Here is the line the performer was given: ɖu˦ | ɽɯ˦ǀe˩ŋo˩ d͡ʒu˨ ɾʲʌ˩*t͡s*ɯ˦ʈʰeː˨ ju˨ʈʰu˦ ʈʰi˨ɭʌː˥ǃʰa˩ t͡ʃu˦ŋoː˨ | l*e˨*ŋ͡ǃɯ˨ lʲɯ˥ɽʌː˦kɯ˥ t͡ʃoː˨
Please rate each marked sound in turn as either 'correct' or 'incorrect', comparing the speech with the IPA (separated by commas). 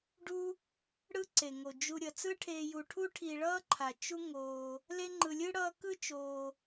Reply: correct, incorrect